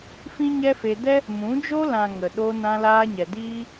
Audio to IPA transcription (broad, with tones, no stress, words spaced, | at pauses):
fĩ˦ɲɛ˦fe˧ dɛ˦ | mũ˨˦d͡ʒo˦ lã˨ ŋə˨ ɗo˧nã˧laː˧ɲɛ˨ diː˦